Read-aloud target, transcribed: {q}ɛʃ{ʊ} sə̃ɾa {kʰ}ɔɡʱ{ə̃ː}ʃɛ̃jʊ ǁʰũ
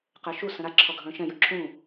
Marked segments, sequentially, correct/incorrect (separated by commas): correct, incorrect, incorrect, correct